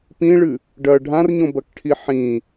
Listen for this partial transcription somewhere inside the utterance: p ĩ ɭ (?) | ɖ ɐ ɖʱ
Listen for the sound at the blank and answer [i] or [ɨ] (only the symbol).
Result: ɨ